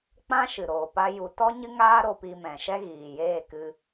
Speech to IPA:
k͡p ã˦ ʃ ɨ˨ ɾ oː˨ p a˦ j u˧ t ɔ˦ ɲ ɨ˦ ŋ aː˦ ɾ o˧ p i˧ m ɛ̃˨ ʃ ɛ˦ ɣ iː˨ j eː˦˨ k ɨ˧

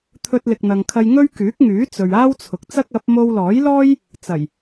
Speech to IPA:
t̪ʰ ɵ˧ t̚ l ɪ˨ k̚ n̪ ɐ˨ ŋ kʰ ɐ˧ j ŋ ɵ˥ ɥ k yː˨˥ k̚ ŋ yː˨˥ t͡s ɵ˨ ɥ aː˥ w t͡sʰ ʊ˨ k̚ t͡s ɐ˥ k̚ ɐ˨˥ p̚ m o˧ w l ɔː˨˥ j l ɔː˥ j | t͡s ɐ˨˩ j

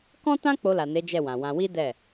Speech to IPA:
k ɔ̃˦ t ã˦ k͡p o˧ l a˨ n e˨˦ d͡ʒ ɛ˦˨ w ã˨ w ã˧ w i˦ d ɛ˦˨

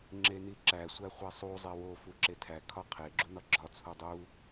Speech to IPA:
ŋ͡ǁ e n i ǁ æ sʷ æ χʷ æ sˤ u zˤ e w o f u ǁ e tʰ æ kʰ ɒ qʰ e ɡ͡ǁ u n ɒ ɡ͡ǁ ɒ t͡sʰ u dˤ u

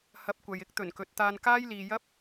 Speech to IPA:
h ɐ˨˥ p̚ kʷ ɐ˨ j ɪ˥ k̚ t̪ ɵ˨˩ n k ɵ˨ t̚ t̪ aː˧ n k aː˥ j l iː˨ j ɐ˥ p̚

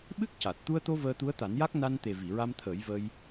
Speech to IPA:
ɓ ɨ˦˥ k̚ c a˨˩ t̚ t̪ u˧ ə̯ t̪ o˧ v əː˧ t̪ u˧˥ ə̯ t̪ a˨˩˦ n j a˦˥ k̚ n a˧ n t̪ e˨˩ v i˨˩˨ ɹ a˧ m t̪ʰ əː˨˩˦ j v əː˧ j

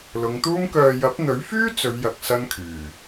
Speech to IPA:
l ʊ˨˧ ŋ t̪ uː˥ m k œː˧ j ɐ˨˥ p̚ n̪ ɵ˨˥ ɥ f yː˥ t͡s ɵ˨˧ ɥ j ɐ˨ k̚ s ɐ˥ n kʰ yː˨˩

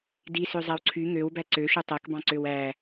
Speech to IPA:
d i s ø zˤ æ w ǀʰ y ŋ ø w b æ ǀ ø ʃ u tˤ æ k b ɑ̃ ǀ ø w æ

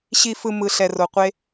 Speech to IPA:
ɕ i˨ f ɯ˨ m ɯ˨ ɬ ɛ˨ r o˨ qʷ e˦

